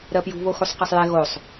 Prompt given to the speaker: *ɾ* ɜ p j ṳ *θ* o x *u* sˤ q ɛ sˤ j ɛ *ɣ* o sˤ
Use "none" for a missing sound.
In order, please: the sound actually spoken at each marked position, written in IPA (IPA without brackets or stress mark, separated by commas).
ɾ, β, u, ɣ